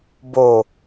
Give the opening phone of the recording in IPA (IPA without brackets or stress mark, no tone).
b